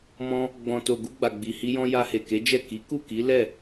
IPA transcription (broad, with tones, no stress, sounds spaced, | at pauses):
m ɔ̃˧ | ɡ͡b ɔ̃˨ t o˨ ɡ u˧ ɡ͡b a˨ ɡ͡b i˨ h i˧ j ɔ̃˧ j a˧ h e˨ k e˨˦ d͡ʒ ɛ˦˨ k i˨˦ k u˦˨ k i˨˦ l ɛ˦˨